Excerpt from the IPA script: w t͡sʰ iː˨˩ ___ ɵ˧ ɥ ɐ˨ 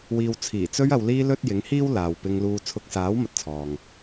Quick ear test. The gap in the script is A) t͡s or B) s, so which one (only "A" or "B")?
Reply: A